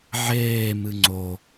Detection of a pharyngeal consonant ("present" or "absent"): present